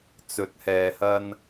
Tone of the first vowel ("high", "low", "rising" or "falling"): low